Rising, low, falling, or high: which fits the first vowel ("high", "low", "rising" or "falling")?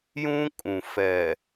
high